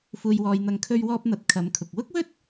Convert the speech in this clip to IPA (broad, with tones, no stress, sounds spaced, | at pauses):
f uː˧ j w ɔː˧ j n̪ ɐ˧ ŋ kʰ ɵ˧ ɥ w ɔː˧ p̚ n̪ ɐ˨˥ t̚ kʰ ɐ˨˧ m kʰ ʊ˨ k̚ w ʊ˥ k̚ w ɵ˥ t̚